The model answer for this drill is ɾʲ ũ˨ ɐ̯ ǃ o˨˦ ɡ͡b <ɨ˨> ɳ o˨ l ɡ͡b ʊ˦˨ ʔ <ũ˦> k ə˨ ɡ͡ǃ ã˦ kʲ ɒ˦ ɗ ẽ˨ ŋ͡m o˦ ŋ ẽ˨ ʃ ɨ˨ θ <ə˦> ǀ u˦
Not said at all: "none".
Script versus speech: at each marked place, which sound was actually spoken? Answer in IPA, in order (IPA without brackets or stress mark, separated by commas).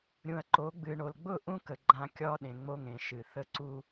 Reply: ɨ˨, ũ˦, ə˦